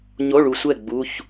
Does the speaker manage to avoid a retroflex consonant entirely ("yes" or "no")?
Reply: no